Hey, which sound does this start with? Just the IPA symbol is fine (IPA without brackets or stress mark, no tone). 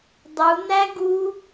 dˤ